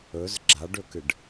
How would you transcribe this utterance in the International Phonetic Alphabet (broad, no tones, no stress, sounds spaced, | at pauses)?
ɵ z ɡ͡ǁ a ɖ ɵ k ɨ ɖ